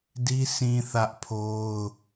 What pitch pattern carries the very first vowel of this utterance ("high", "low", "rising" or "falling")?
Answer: high